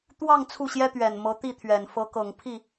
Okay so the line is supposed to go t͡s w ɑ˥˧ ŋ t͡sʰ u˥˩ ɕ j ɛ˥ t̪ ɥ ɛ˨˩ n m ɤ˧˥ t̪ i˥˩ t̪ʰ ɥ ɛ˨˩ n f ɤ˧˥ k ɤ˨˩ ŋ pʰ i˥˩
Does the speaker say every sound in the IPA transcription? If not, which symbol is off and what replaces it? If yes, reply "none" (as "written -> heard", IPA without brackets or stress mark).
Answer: t͡s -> t̪